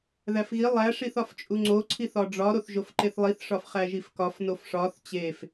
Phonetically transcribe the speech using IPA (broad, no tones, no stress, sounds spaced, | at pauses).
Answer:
ð æ f ɣ i lˠ æ ʂ i θ ɒ f t͡ʃʼ u ŋ͡ǀ o ǀʰ i θ ɒ ɖ͡ʐ ɒ ɾ o θ ʒ o f ǃ e θ lˠ i θ ʂ ɒ f χ æ ʒ i f k ɒ f n o f ʂ ɒ θ t͡ɕ e f